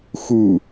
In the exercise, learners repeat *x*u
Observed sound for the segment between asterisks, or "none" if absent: x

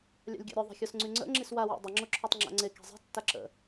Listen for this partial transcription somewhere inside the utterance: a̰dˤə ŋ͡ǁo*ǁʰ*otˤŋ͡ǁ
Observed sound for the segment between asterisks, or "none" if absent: ǁʰ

